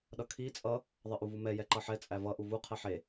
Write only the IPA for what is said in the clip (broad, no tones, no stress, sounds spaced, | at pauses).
ɗ ʌ kʰ i t͡sʼ ʌ | ðˤ ʌ ʔ u v u m ɛ j ɛ ǃ ʌ ħ ɛ t͡sʼ æ v ʌ ʔ u v u qʰ ɛ ħ e